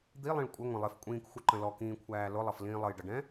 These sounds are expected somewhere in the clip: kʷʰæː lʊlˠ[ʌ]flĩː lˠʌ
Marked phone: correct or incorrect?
correct